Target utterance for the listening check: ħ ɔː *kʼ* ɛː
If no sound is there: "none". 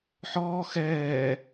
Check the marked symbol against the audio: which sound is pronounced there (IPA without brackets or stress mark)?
x